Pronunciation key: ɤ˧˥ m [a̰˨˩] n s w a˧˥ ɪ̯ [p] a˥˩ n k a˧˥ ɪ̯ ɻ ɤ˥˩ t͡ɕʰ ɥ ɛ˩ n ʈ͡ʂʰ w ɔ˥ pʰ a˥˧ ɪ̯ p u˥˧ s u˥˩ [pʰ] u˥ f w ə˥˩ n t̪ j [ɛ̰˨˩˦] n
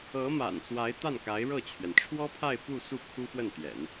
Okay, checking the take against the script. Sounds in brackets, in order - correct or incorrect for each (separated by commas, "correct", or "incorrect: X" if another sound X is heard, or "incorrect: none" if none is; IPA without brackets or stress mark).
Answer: correct, incorrect: t̪, incorrect: kʰ, correct